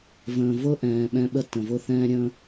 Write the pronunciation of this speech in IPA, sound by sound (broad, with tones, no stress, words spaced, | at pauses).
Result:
və̃ː˨vʊ˦ʔɛ̃ː˨ ɓɛ̃˦ɓə˦ tə̃˨vʊ˦˨ θɛ̃ː˦ɾʲə̃ː˦